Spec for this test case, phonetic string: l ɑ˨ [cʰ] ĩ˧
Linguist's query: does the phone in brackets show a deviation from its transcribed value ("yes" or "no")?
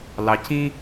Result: no